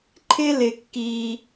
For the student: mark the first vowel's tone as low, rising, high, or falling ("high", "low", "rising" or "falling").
high